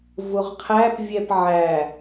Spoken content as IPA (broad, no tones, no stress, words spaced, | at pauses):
vʊʁqʰæpvʲɛp ʕæ